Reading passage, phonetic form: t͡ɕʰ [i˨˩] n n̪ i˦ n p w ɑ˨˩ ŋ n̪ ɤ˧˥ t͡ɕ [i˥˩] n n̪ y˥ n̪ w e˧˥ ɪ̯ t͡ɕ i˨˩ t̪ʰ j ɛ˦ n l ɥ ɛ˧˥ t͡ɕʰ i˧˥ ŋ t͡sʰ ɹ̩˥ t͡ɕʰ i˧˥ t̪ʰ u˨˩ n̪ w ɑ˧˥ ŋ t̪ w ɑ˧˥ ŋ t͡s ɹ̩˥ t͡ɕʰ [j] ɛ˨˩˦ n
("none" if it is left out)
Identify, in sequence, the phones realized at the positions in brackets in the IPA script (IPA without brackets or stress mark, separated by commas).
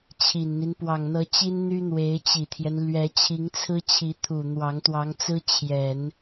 i˨˩, i˥, j